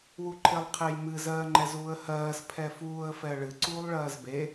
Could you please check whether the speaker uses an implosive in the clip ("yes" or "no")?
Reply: no